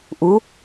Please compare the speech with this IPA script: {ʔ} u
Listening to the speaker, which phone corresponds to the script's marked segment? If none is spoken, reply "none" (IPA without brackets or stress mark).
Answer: ʔ